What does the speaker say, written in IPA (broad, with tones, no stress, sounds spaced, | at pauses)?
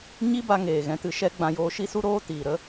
ɲ i˦ b a˧ ŋ eː˨ ɣ ɛ̃˧ t ɨ˧ ʃ ɛ˦ ɡ͡b ã˧ j oː˧ ʃ i˦ s u˦ ɾ oː˦ t iː˨ ɾ ə˦